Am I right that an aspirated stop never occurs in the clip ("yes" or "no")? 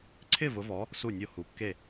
no